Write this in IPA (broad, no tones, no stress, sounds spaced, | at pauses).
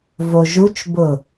v o ʒ u t͡ʃ b ʊ